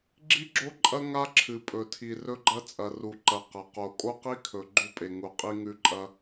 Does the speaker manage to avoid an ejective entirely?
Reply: no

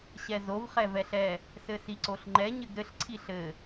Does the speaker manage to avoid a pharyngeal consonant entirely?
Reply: yes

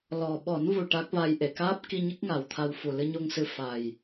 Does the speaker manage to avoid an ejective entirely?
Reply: yes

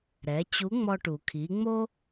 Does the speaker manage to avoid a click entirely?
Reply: yes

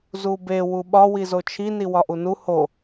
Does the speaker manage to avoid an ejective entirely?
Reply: yes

